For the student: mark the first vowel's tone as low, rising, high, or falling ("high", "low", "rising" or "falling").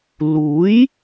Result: rising